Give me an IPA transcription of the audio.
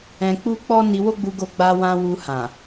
ɛ̃˧ k͡p u˦ k͡p ɔ˦ n i˧ w o˦ ɡ͡b u˧ ɡ o˧ ɡ͡b a˧ w ã˧ w u˧ h ã˨

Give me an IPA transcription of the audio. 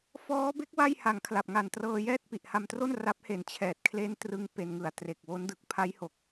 f ɔː˦˥ b e˦˥ k̚ w a˥˩ j h a˨˩ ŋ kʰ l a˨˩ p̚ ŋ a˨˩ n t r ɤː˧ j ɛː˥˩ t̚ p i˨˩ ʔ h a˧ m t r o˥˩ n r a˦˥ p̚ h e˨˩ n t͡ɕʰ ɛː˨˩ t̚ kʰ l e˦˥ n t r ɯ˧ ŋ p e˧ n ŋ ɯ˨˩ a̯ t r e˨˩ k̚ w o˦˥ n d ɯ˨˩ k̚ pʰ a˦˥ j h o˨˩ k̚

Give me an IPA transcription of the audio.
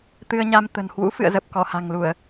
t̪ ɨ˧ ə̯ ɲ a˧ m t̪ ə̤˨˩ n h w ṵ˧˥ f ɨ̰˧˨ ə̯ z ə˨˩ p̚ k ɔ˧˩ h a̤˨˩ ŋ l u˧˩˨ ə̯

